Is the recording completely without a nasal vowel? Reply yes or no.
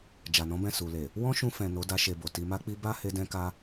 no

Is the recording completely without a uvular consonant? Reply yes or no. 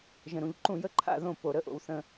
yes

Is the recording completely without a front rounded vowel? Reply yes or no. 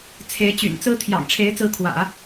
no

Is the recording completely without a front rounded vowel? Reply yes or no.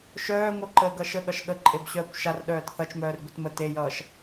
no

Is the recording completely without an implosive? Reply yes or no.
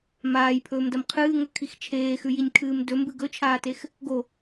yes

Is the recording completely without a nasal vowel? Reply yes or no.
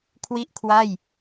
yes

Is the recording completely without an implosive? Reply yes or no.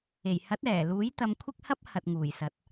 yes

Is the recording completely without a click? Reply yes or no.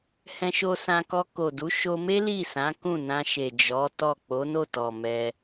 yes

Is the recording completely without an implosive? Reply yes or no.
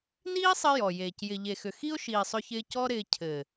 yes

